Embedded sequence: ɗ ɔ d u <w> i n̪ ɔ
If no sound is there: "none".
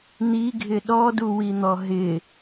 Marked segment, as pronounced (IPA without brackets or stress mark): w